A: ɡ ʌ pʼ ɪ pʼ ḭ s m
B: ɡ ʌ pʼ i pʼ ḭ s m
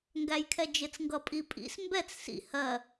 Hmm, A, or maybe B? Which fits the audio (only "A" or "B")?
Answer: B